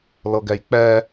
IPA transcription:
lɤɡɛjk͡pɛ

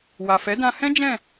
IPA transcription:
wa˨fɛ˨˦dã˧hɛ̃˦ d͡ʒɛ̃˦˨

